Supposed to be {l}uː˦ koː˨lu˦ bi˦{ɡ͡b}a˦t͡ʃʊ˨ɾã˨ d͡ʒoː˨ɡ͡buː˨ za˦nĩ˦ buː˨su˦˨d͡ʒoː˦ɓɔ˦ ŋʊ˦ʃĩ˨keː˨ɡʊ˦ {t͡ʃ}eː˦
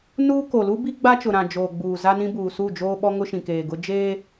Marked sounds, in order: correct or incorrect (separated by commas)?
incorrect, correct, incorrect